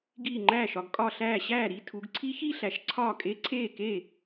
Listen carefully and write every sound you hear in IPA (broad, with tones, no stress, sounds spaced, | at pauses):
ɡ iː˧˩ ŋ͡ǃ æː˧˩ ʃ ɒ˩˧ ɡ kʼ ɒ˧˩ ɬ æː˧˩ ɕ æː˥˩ ɾ i˥˧ tʰ u˩˧ ɡ ǀʰ i˦˥ ç i˥˧ ɬ æ˩˧ ʃ ǀʰ ɒː˥˩ kʼ e˦˥ ǀʰ eː˥˩ k e˥˩